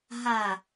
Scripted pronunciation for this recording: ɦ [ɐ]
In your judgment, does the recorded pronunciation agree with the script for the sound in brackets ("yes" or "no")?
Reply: no